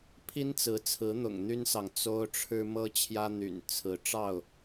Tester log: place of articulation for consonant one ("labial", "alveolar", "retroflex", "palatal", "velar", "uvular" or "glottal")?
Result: labial